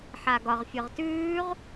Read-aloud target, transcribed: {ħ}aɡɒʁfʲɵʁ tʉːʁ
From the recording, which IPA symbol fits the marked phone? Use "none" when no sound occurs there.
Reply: ħ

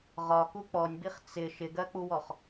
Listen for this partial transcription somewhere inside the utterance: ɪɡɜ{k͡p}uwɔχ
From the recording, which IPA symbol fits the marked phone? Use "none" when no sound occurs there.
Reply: k͡p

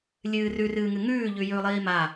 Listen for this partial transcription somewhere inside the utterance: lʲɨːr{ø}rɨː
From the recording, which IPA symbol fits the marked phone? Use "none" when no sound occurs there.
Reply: ʉ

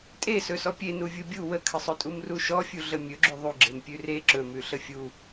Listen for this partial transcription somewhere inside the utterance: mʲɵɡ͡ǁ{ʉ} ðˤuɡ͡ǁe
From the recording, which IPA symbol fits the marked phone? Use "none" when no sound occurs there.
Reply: ʉ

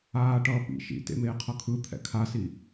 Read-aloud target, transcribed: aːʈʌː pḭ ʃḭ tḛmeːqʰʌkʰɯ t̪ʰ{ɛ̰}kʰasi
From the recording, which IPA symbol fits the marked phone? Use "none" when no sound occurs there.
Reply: ɛ̰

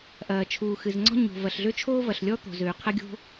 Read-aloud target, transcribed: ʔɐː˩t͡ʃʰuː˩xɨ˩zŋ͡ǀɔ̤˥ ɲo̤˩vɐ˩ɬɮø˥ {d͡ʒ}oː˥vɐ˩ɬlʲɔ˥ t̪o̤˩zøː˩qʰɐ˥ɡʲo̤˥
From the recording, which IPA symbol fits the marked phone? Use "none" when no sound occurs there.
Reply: t͡ʃʰ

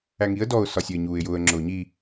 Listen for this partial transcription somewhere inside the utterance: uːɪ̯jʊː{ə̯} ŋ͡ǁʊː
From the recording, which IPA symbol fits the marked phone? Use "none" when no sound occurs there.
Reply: ə̯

